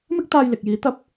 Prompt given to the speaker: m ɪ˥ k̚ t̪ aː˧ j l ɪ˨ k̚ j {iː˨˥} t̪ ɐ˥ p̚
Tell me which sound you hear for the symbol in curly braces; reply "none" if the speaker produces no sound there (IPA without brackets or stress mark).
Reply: iː˨˥